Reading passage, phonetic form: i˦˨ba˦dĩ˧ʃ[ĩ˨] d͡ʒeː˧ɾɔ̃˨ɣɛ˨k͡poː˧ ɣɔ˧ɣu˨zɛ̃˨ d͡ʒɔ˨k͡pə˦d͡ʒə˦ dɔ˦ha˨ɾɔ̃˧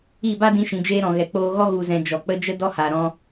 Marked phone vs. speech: correct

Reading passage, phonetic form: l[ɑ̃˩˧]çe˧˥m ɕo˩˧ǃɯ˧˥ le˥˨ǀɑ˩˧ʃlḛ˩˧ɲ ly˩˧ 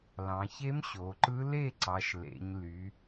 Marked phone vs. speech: correct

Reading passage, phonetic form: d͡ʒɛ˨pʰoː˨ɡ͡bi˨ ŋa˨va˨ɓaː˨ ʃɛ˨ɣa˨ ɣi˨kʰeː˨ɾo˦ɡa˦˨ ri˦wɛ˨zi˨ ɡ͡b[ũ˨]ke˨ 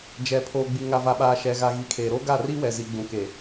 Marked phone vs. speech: correct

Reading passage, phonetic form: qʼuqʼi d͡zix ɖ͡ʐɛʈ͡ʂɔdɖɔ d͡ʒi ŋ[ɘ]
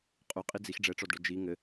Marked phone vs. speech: correct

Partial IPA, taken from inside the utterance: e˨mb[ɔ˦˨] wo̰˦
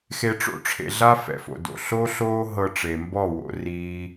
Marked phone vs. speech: correct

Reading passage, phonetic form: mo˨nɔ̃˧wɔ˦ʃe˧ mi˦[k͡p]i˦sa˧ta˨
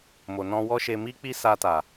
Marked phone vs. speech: correct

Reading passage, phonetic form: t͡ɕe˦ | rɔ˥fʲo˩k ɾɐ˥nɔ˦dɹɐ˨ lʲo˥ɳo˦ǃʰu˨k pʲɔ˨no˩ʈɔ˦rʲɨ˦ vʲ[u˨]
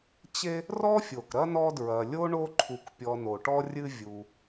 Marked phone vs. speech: correct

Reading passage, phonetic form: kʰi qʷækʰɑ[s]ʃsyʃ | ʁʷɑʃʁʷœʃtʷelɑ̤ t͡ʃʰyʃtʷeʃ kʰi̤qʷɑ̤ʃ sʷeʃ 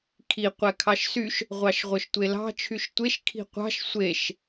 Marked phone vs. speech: incorrect: none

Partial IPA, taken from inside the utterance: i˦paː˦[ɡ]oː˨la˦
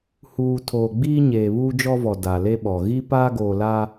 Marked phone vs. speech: correct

